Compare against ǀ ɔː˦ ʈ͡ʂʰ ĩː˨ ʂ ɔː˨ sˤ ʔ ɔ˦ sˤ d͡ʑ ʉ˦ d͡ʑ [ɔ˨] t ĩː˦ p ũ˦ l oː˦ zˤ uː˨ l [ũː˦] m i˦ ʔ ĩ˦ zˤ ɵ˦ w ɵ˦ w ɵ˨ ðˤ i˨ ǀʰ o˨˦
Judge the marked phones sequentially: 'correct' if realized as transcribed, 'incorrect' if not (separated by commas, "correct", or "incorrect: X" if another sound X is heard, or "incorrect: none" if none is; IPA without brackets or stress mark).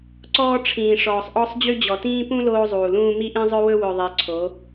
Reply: correct, correct